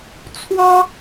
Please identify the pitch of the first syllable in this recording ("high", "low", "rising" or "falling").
high